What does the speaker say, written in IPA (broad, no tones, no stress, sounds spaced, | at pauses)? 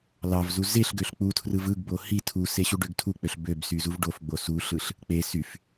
l ɑ v z u z e ɬ ɡ ø ɬ k͡p u tʰ r ɯ v ɯ ɡ b o h i tʰ u s e ɕ u ɖ ø ɡ tʰ u k͡p ø ɬ b ø b s y z u v ɖ o f ɡ͡b o s u ɬ ɯ ɬ | k͡p e s y f